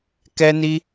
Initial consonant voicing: voiceless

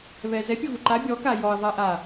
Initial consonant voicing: voiced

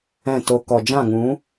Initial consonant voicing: voiceless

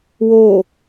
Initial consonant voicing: voiced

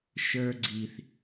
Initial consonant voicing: voiceless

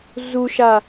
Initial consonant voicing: voiced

